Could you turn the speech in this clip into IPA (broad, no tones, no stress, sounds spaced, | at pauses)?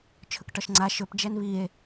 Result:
t͡ʃʰ ɵ k ʈ ɒ ʃ ŋ͡ǀ a ʃ ɵ p d͡ʒ ɛ n β i e̯